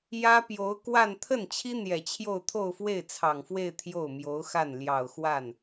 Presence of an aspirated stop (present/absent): present